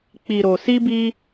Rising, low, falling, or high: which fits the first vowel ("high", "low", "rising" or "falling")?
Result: low